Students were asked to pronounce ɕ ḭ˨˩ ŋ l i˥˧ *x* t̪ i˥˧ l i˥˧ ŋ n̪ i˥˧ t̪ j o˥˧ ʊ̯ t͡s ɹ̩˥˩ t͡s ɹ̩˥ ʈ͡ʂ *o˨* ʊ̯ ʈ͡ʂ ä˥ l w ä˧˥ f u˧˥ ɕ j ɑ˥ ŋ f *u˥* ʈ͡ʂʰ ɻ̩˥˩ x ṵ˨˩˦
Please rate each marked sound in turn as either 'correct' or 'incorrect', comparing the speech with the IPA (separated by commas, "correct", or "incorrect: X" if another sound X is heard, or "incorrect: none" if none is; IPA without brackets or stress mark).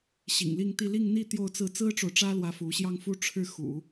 incorrect: ŋ, correct, correct